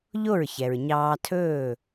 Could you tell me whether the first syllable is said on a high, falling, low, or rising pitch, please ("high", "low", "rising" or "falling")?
falling